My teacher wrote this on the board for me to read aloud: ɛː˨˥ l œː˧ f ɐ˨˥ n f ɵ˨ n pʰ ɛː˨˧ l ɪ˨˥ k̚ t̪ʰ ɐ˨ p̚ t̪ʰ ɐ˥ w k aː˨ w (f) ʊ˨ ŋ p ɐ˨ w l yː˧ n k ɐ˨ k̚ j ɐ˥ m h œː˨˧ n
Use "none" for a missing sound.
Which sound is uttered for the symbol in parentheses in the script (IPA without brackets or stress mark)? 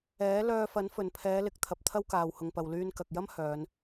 h